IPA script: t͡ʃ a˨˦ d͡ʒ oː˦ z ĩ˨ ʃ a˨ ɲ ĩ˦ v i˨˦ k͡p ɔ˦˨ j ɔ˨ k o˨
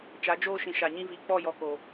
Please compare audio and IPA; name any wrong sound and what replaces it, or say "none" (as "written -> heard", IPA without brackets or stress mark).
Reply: z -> ʃ